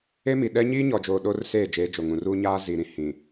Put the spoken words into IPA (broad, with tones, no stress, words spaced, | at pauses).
e˦mi˨ɗɛ˦ ɲiː˦ɲɔ˨d͡ʒoː˨ ɗoː˦rseː˦˨d͡ʒeː˨˦ d͡ʒo˨ŋũ˨ruː˦ ɲaː˦ zi˨ɾĩ˨ hĩ˨